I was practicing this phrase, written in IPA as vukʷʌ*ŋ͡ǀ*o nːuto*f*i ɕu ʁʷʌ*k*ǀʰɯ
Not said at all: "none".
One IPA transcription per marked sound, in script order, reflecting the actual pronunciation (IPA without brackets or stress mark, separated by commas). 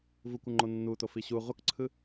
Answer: ŋ͡ǃ, f, k